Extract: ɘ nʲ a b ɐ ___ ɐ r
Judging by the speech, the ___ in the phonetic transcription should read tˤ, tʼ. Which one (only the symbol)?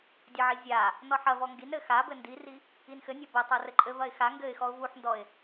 tˤ